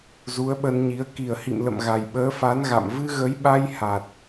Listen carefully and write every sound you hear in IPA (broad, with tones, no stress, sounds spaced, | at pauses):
z u˨˦ ə̯ ɓ ə˧ n ɲ i˨˦ ə̯ k i˨˩ ə̯ h ḭ˧˨ m l ə̰˧˨ m ɣ a˨˩ j ɓ əː˨˦ f a˨˦ n ɣ a̰˧˨ m v ɨ˧ ɣ ə˨˦ j ɓ a˧ j h a˨˩ t̚